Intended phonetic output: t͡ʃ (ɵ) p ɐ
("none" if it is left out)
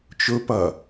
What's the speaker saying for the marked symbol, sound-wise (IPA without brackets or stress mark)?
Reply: ɵ